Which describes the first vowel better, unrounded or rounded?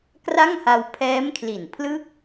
unrounded